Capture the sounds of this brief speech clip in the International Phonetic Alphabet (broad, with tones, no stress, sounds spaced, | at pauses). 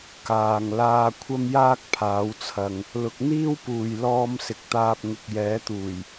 k aː˨ ŋ l aː˧ kʷʰ ɐ˥ m j aː˥ k̚ pʰ aː˨˧ w t͡sʰ ɐ˨ ŋ | l ʊ˧ k̚ n̪ iː˥ w p uː˨ j l ɔː˧ m s ɪ˨ k̚ t̪ aː˧ p̚ ŋ ɪ˨ k̚ j ɛː˨˧ t̪ uː˨˩ j